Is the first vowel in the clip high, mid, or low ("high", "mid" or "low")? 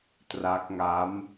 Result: low